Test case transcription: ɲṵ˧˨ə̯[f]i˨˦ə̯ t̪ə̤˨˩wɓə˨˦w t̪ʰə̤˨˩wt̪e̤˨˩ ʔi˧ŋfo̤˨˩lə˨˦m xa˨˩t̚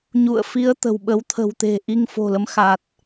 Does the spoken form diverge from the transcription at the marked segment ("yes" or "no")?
no